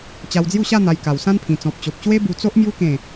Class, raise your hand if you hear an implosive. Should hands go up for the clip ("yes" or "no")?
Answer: no